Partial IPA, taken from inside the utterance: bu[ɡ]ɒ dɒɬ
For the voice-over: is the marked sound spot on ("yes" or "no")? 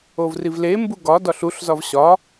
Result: yes